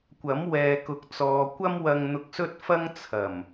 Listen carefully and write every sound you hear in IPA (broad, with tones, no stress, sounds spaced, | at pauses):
kʷ ɐ˨˥ m w ɛː˨ k ʊ˨˥ k̚ t͡s ɔː˨ kʷ ɐ˥ m w ɐ˧ ŋ n̪ ʊ˧ k̚ s ɵ˥ t̚ f ɐ˥ ŋ t͡sʰ ɐ˨˩ m